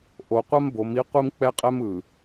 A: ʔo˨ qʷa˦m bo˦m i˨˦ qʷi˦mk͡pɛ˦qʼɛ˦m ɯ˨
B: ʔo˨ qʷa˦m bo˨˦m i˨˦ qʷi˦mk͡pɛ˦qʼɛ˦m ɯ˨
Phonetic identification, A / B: B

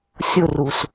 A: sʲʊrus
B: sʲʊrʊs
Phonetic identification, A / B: A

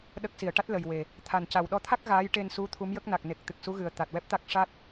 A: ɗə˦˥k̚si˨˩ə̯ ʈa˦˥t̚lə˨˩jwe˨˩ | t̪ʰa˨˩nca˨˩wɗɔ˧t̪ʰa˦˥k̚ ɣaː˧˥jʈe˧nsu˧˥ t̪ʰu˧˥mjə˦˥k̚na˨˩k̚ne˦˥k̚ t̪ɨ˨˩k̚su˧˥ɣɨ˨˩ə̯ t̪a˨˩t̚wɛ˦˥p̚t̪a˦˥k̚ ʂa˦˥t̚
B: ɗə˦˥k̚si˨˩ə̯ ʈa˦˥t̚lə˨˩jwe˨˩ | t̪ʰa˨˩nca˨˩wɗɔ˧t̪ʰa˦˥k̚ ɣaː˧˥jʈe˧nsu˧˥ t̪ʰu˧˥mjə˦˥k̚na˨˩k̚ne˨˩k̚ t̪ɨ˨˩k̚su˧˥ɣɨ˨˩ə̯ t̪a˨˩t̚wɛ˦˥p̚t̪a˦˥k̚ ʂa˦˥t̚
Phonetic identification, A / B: B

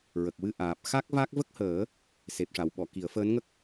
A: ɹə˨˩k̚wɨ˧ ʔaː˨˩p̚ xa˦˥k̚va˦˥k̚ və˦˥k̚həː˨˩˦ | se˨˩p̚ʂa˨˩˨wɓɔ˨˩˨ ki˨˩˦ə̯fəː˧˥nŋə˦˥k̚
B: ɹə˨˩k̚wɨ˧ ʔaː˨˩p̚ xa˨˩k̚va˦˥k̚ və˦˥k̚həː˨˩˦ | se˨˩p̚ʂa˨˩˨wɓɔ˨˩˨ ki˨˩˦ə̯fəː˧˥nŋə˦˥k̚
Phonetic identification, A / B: A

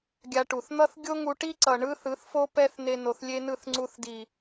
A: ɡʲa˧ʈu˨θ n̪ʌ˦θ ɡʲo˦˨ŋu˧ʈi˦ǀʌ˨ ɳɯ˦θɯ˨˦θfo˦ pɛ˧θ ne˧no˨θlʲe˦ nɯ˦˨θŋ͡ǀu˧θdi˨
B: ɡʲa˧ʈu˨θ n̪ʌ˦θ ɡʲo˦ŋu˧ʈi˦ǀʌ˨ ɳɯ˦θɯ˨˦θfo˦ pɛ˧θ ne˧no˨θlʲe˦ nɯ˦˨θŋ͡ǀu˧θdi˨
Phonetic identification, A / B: B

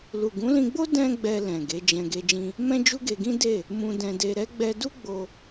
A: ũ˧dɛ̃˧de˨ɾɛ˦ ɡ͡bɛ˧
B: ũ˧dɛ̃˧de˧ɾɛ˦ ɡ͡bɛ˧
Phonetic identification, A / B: B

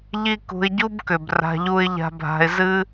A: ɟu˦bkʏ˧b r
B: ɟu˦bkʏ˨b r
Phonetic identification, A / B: B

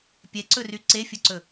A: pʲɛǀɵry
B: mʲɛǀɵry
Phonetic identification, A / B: A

